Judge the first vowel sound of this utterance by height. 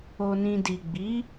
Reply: mid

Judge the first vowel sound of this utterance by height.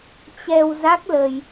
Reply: mid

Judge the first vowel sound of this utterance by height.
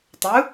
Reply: high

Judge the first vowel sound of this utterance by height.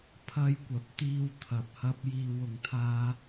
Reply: low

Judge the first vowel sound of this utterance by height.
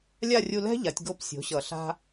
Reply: low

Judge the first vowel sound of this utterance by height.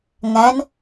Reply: low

